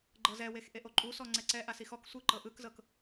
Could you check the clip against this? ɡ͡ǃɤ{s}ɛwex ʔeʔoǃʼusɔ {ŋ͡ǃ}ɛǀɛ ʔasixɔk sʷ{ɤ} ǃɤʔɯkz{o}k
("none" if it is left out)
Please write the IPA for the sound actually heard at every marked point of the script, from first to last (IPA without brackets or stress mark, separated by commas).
z, ŋ͡ǀ, ɯ, ɤ